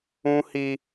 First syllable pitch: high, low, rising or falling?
high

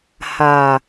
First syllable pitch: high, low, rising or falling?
low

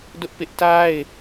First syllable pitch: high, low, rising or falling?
high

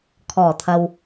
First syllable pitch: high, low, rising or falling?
low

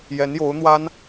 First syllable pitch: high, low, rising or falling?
rising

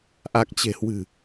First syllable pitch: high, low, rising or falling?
low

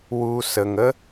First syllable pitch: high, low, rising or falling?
low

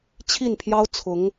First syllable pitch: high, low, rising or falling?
falling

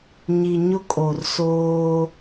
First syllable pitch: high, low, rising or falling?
low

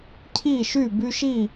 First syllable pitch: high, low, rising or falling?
falling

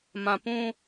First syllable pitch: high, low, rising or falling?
low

